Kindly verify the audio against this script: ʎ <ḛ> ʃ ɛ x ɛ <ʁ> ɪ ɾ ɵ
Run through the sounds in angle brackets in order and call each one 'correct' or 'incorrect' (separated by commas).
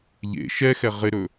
correct, correct